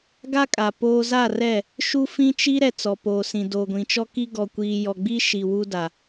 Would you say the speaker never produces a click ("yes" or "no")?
yes